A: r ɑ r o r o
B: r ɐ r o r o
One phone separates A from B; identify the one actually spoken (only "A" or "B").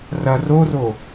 B